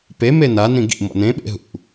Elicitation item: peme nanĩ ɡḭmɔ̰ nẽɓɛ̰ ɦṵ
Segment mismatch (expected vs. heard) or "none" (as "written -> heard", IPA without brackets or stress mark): ɛ̰ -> ḛ